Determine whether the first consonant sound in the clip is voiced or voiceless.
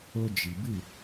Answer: voiced